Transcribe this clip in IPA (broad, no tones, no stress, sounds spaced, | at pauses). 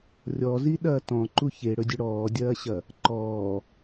rʲ ɔ z i ɗ ɐː t ɔ̃ ǃ u ç e ɽ ɵ dʲ ɵ ɽ ɔː dʲ ɐː ɕ ɐ | ǃ ɔː